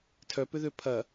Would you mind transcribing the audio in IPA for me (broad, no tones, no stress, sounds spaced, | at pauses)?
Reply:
tʰ œ p ʏ ð ø pʰ ɐ